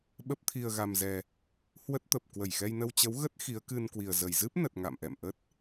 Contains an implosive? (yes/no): yes